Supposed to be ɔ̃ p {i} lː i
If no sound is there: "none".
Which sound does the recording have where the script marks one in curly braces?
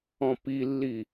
i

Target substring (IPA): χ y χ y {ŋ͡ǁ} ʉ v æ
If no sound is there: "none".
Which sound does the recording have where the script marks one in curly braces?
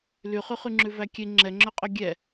ŋ͡ǁ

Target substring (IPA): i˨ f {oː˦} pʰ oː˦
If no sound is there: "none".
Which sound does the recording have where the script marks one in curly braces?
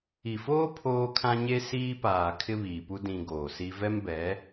oː˦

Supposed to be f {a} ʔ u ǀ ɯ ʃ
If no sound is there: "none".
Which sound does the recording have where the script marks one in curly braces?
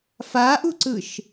a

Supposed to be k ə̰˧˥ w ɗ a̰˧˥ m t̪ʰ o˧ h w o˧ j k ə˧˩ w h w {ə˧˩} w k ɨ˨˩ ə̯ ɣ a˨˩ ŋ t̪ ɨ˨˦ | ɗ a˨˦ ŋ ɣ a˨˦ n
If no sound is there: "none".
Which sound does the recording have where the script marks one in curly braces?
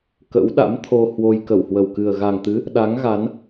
ə˨˩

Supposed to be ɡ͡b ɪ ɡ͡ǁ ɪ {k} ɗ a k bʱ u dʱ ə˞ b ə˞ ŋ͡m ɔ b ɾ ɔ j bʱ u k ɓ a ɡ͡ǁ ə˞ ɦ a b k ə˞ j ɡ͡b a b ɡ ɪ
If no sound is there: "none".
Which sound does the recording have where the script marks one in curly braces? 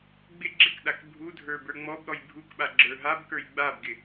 k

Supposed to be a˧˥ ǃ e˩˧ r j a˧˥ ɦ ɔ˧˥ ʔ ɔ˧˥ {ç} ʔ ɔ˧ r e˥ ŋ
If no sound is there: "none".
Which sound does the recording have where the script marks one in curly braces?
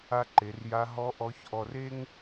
ç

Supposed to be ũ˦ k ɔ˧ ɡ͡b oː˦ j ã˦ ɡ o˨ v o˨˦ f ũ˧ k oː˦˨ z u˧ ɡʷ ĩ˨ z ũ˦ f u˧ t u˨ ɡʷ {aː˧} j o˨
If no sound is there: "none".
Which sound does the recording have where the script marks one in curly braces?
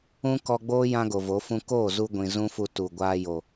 aː˧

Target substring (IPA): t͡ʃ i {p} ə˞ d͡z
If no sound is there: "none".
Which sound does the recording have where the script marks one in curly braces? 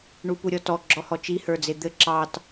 h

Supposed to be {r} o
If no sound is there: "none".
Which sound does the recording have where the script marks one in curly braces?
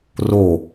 r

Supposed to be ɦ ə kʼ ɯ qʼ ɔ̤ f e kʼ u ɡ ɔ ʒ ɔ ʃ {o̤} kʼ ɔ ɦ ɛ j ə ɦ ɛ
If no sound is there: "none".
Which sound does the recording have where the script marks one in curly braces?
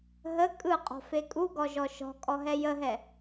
ɔ̤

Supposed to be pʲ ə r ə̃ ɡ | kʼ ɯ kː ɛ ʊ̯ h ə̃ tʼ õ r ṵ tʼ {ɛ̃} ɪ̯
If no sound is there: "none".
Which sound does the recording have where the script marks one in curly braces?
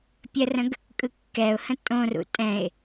ɛ̃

